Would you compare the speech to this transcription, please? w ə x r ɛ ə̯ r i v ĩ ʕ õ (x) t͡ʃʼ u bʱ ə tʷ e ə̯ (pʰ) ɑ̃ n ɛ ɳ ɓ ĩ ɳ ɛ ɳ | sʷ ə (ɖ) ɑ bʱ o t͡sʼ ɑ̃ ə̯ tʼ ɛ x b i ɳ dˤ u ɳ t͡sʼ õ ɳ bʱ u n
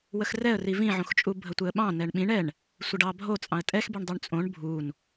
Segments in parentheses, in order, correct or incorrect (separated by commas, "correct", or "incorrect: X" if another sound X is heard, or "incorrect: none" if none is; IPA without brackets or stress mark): correct, incorrect: ɓ, correct